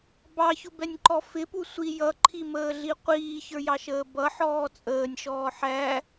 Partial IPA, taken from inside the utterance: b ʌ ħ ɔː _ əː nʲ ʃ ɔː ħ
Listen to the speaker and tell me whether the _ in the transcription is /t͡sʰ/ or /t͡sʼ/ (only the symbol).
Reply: t͡sʼ